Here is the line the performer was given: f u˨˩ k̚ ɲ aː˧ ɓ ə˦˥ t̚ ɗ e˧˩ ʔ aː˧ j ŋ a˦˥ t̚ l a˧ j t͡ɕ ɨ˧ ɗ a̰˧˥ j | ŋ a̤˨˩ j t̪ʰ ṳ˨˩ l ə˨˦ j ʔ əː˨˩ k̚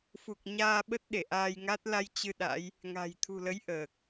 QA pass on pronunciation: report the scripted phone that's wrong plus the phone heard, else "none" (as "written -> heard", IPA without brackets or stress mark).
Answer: none